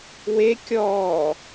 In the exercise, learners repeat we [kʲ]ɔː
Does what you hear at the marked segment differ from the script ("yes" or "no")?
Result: no